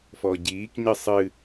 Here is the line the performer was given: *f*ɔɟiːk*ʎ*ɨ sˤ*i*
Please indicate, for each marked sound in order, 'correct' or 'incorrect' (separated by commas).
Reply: correct, incorrect, incorrect